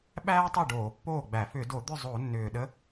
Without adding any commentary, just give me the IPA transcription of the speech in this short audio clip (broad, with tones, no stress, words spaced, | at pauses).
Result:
ɓæː˥tˤʏ˥˩ ɖoː˧˩˧pːoː˥˩ɡ͡bæ˧˩˧ fʏ˧˩˧do˧˩˧d̪ʏ˥˩ zˤo˧˩˧nːʏː˨˩ɗə˧˥